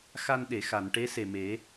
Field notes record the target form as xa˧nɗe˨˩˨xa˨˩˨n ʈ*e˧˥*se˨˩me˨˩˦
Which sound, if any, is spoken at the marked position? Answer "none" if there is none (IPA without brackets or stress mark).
e˧˥